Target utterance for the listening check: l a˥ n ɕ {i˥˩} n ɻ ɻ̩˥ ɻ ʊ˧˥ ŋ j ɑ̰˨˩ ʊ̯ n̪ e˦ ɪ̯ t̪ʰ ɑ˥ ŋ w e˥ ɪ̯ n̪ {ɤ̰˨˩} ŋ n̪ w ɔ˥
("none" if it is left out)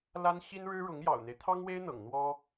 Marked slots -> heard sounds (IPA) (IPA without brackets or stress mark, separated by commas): i˥, ɤ̰˨˩